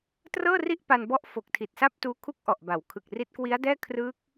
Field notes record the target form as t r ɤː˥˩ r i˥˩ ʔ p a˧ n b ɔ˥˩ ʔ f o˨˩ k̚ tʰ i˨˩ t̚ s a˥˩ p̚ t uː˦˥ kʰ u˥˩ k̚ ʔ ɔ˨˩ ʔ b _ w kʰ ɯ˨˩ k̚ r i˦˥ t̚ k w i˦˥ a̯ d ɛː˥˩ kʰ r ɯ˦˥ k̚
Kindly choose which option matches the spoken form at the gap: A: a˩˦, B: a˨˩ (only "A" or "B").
A